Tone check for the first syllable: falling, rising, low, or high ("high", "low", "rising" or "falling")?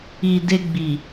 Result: low